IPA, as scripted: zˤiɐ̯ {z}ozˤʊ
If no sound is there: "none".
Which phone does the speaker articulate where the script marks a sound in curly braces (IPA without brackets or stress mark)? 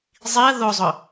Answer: ð